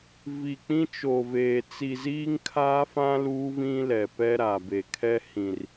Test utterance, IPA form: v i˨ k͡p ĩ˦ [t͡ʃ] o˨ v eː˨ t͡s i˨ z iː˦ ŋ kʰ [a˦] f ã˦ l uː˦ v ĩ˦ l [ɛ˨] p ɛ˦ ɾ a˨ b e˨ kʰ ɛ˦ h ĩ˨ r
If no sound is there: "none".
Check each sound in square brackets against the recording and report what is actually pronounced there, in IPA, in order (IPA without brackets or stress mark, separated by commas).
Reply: t͡ʃ, aː˦, ɛ˨